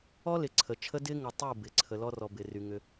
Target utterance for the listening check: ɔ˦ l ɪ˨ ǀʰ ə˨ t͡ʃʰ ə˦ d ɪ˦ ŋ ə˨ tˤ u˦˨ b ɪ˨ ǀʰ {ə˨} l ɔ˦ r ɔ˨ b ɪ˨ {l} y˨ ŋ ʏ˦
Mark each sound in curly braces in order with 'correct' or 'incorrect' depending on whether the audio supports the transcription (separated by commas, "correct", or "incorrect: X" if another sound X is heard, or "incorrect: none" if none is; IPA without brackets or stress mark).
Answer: correct, incorrect: r